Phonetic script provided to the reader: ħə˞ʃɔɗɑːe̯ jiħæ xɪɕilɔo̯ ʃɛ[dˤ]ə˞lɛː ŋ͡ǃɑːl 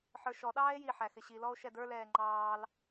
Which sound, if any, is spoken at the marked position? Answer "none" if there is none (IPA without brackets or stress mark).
d